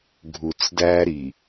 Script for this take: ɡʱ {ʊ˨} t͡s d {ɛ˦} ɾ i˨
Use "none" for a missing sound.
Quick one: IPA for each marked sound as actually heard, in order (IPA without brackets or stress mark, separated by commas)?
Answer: u˨, æ˦